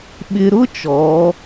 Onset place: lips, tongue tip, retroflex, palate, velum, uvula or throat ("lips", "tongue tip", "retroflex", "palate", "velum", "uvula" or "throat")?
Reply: lips